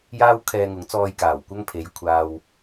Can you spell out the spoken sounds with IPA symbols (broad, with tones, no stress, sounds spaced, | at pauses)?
j aː˥ w kʰ ɛː˧ ŋ ʊ˨˥ ŋ t͡s ɔː˧ j k aː˨˩ w kʷ ɐ˥ ŋ pʰ e˨˧ j kʷʰ aː˧ w